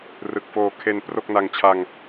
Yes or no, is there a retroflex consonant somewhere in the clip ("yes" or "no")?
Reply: no